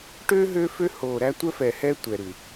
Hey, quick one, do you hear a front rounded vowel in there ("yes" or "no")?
yes